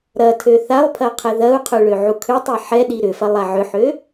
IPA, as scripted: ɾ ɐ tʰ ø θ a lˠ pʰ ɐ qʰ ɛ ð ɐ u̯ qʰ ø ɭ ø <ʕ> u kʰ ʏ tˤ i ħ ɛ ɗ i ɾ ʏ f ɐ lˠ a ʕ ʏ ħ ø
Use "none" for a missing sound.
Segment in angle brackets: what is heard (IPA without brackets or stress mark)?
ʕ